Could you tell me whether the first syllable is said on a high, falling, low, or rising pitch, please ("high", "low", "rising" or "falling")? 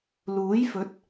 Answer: rising